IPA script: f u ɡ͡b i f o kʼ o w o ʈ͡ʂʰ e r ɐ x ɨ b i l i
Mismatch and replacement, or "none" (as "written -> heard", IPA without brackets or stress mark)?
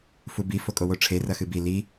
ɡ͡b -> b